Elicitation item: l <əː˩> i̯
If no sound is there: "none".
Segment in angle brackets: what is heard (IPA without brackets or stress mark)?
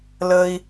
əː˩